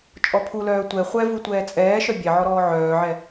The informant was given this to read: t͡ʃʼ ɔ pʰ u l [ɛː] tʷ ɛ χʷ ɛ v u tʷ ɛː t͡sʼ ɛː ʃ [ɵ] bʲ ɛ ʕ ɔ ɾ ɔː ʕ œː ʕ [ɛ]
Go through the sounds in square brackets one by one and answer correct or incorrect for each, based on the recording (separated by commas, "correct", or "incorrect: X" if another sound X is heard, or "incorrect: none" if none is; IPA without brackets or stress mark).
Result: incorrect: œː, incorrect: œ, correct